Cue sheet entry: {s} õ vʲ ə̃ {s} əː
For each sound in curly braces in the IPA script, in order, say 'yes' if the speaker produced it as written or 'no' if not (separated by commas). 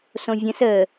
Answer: yes, yes